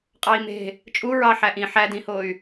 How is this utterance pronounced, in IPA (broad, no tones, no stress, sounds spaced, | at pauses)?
qʼ ɑ i̯ m e̤ | t͡ʃʼ u ɹ ɑ ħ æ ʔ ĩ ħ æ d ĩ h o y̯